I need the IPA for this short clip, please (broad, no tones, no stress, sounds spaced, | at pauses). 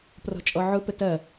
p r ɔ̤ t͡ʃʼ ɔ ʕ ʊ p ə t ɐ